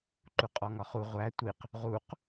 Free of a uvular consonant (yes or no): no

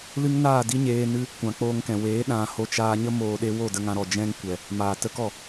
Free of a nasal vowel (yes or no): no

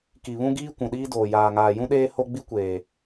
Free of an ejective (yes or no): yes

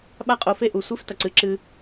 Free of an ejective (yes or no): no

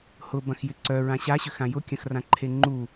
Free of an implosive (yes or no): yes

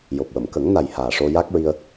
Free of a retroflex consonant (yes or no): no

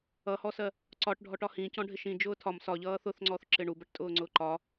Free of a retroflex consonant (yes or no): no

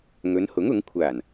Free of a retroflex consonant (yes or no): yes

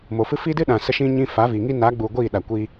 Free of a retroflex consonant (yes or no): yes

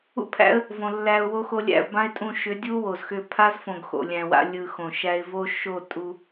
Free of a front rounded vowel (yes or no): no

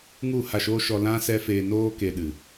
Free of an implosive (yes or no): no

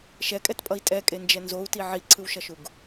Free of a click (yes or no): no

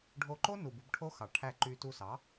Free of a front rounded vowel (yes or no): no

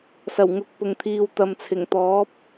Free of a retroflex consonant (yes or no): yes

